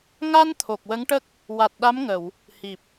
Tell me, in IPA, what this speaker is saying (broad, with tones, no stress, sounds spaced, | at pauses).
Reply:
ŋ a˧ n t̪ʰ o˨˩ k̚ w ə˧˥ ŋ ʈ ə˦˥ k̚ | w a˨˩ t̚ ɗ a˧˥ m ŋ ə˨˩˨ w | h i˨˩ p̚